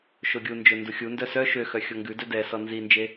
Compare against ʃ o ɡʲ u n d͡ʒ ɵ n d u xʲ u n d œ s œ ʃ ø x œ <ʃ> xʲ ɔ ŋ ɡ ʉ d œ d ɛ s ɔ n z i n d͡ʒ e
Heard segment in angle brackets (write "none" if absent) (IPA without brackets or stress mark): none